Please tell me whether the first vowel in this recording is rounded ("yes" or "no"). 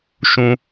yes